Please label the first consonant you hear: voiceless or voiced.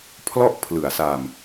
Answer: voiceless